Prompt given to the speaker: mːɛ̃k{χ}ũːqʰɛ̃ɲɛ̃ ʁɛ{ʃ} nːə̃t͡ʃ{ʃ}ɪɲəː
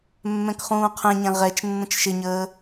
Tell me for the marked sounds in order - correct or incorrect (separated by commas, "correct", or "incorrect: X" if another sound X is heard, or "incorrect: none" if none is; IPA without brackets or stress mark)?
correct, incorrect: t͡ʃ, correct